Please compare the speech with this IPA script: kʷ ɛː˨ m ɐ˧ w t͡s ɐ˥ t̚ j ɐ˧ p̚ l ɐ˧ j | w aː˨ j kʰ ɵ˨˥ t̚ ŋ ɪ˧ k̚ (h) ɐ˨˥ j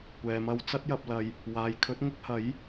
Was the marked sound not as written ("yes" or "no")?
no